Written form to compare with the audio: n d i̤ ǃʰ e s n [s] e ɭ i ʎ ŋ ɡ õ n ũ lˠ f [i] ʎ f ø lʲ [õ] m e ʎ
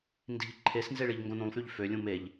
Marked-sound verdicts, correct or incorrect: incorrect: z, incorrect: y, incorrect: ũ

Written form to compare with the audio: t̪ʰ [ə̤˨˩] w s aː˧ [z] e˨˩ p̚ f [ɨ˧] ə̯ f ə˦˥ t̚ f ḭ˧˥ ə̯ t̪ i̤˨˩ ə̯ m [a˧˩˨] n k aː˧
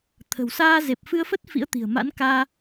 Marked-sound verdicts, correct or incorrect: correct, correct, correct, incorrect: a̰˧˥

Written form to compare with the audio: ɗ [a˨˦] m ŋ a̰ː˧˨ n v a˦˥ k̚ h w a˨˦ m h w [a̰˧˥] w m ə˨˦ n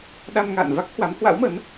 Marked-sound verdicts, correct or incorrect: incorrect: a˧, correct

